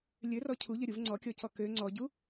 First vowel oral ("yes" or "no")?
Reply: yes